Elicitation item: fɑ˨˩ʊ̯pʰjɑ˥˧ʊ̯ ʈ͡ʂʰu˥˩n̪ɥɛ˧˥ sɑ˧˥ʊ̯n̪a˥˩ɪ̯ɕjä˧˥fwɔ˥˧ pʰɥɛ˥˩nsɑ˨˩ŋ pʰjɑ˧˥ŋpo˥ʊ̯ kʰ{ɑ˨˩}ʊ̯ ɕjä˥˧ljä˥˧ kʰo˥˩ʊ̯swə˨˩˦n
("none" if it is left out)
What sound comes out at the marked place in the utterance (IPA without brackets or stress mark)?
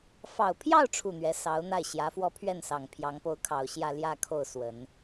ɑ˨˩